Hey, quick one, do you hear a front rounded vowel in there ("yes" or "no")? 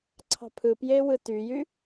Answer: yes